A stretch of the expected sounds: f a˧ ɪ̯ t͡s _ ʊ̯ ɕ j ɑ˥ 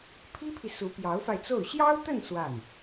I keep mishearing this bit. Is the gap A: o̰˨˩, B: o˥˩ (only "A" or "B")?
B